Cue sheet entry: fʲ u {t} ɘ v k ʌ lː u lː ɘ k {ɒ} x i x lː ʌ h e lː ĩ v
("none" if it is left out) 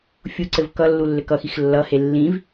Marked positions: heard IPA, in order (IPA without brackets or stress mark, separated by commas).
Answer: ǀ, ʌ